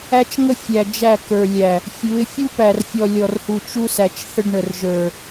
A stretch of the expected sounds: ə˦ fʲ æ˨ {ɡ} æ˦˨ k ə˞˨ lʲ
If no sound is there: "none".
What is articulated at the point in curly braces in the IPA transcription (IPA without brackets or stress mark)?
d͡ʒ